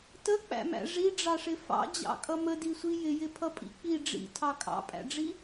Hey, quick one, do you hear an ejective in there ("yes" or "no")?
yes